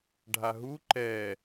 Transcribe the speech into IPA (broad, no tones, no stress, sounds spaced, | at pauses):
ɖʱ a ɦ u ǃ ɛ